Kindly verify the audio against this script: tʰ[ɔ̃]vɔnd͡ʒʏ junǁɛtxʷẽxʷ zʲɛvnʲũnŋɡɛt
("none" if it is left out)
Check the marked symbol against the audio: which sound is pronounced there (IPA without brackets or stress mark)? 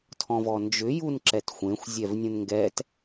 ɔ̃